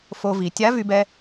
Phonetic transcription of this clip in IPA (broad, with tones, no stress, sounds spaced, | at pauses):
f o˧ v i˩˧ tʲ a˧˥ v y˧ b ɛ˧